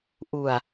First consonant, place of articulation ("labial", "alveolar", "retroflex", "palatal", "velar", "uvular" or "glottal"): glottal